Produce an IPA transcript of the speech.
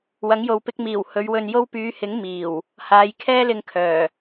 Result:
wɐ˨˥ŋjo˨w pɪ˧k̚miː˨˩w hɵ˨˧ɥwɵ˧njo˥w pyː˨˧hɪ˨˥ŋ miː˨˩w | haː˨jkʰɛː˥lɪ˧ŋkʰœː˨˩

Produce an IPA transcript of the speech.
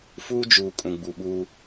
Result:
fuː˦d͡ʒuː˨ kʼũ˨ɡ͡bu˨ɓu˦

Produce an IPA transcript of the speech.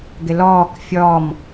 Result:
ɡɪlɔːk fʲɔm

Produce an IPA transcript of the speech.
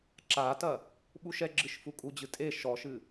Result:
ǁatɐ | ɓuʃɛɡ͡ǁɨʃ fukʼud͡ʑɨ tʼe ʃɔʃɨ

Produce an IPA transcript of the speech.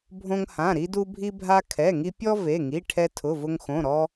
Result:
bʱõ˥ŋhã˧˥˧ ɾi˥du˥bʱi˥bʱa˥ kʰɛ˧˥˧ŋi˥ pʲɔ˥ ve˧˥˧ŋi˧˥˧ʈʰɛ˥ tʰʊ˧˥˧vʊ˥ŋxõ˧˥˧ ɾɔ˥

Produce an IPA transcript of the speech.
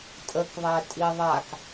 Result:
tʼəkðˤæ tʼiðˤak

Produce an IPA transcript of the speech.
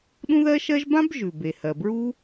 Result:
ɗũ˥ðɜ˥ʃɜ˥ʒ bã˥bʒʉ˩be˩ hɜ˩bɹu˥

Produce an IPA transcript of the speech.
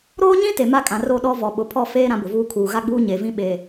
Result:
ɾoː˦ɲĩ˦ te˨ma˦kʼã˨ ro˦˨ɗɔ˦ vɔ˨ɓʊ˨pʰɔ˦˨feː˦ ɾã˦bʊ˨vuː˦ kʰuː˨ɣa˦ɡ͡buː˦ ɲe˨vĩ˦ ɓeː˨

